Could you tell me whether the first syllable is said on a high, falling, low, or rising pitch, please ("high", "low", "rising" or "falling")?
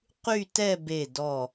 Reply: falling